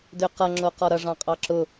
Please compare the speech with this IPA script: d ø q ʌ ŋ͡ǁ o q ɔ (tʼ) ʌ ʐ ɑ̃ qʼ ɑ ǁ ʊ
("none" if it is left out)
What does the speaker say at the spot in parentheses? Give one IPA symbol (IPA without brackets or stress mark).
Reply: ɾ